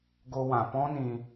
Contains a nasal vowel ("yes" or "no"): yes